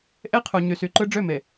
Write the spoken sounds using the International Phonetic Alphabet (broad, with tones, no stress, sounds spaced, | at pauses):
ʔ e˦ qʰ u˨ ɲ y˨ s y˨ ǃ ɯ˦ ɖ͡ʐ ø˦˨ m e˨